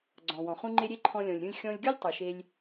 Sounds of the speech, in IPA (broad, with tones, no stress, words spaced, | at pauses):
ɡ͡ǀɔ̃˩wɔ̃˩χũ˥ŋ͡ǃe˥ ɾʲe˥ǃʰɔ̃˧lʲɔ̃˩lʲ ɾʲũ˧lʲxʲɔ̃˧lʲɡʲu˥lʲ tˤu˩ʃe˧lʲ